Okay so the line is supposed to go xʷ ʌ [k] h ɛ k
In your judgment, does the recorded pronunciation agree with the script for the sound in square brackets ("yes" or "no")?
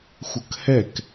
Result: yes